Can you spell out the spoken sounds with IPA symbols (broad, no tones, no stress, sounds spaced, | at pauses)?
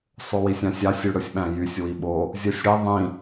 sˤ o w i sʲ ɑ̃ sʲ ɑ sʲ y ɽ ɯ sʲ ɓ æ̃ j y sʲ w i ɓ o | zʲ ɯ sʲ ɽ i ðˤ ĩ